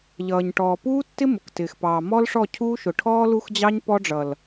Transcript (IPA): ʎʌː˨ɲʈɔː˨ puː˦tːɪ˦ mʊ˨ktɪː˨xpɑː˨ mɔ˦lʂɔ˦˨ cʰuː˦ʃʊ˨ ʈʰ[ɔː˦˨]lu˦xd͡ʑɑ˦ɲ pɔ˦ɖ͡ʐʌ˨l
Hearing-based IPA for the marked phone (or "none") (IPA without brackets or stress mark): ɔː˦